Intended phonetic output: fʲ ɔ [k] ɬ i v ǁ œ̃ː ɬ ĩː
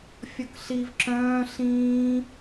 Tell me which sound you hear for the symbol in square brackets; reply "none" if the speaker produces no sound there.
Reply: k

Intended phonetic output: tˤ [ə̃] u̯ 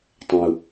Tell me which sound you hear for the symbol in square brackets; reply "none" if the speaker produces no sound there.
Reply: ə̃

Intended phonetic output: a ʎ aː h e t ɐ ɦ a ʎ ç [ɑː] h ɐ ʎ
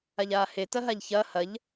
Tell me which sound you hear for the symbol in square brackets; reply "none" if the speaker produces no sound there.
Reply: ɐː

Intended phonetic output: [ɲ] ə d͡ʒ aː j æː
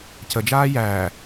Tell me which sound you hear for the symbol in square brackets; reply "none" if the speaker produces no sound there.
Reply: c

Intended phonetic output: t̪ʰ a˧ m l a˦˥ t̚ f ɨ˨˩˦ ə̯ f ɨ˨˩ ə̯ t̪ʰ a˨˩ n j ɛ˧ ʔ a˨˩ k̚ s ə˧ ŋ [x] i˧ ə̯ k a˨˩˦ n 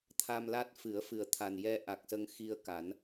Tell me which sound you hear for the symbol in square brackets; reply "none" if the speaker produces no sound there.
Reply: x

